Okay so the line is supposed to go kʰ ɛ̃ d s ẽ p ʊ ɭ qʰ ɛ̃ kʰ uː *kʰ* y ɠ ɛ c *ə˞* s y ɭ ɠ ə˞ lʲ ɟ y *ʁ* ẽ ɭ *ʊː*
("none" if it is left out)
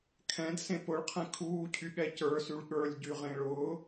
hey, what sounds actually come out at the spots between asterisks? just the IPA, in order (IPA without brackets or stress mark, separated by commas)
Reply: cʰ, ə˞, ʁ, ʊː